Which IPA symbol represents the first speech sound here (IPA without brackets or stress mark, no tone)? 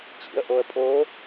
t͡ɕ